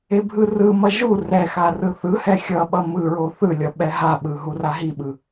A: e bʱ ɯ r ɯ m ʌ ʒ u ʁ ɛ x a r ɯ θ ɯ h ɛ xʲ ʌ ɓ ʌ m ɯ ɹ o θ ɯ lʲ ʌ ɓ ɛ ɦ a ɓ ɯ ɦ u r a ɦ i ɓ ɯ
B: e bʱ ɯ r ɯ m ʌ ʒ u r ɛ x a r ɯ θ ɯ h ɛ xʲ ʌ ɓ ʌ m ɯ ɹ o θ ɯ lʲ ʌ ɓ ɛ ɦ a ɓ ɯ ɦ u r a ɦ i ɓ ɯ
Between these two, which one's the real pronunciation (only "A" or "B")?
B